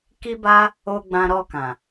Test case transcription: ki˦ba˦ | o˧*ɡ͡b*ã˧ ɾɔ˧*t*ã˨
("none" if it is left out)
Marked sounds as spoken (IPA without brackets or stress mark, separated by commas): ɡ͡b, k